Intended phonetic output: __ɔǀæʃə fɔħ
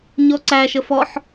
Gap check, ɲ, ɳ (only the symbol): ɲ